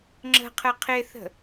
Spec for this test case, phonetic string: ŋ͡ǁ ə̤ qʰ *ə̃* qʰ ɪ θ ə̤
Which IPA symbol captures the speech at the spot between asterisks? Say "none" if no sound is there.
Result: ə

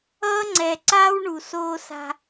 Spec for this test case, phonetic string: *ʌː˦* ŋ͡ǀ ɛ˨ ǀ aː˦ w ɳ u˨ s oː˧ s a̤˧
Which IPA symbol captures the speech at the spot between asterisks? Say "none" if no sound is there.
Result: ʌː˦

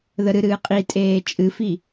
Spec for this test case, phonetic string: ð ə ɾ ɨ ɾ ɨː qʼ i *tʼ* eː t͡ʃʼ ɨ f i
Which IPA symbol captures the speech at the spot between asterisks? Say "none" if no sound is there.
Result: tʼ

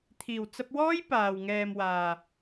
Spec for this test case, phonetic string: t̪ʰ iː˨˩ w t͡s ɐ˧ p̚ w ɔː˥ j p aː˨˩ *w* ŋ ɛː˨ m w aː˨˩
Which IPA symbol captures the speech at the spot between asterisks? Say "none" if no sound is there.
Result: w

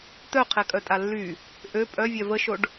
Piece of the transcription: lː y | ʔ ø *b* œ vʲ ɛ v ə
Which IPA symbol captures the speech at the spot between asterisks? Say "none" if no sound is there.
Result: pʼ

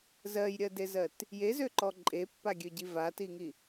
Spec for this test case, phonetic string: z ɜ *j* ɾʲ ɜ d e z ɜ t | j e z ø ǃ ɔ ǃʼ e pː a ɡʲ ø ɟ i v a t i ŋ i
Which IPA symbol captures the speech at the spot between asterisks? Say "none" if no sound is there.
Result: j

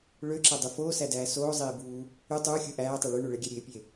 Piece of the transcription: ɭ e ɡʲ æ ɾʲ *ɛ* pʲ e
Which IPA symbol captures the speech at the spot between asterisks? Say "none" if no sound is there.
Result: e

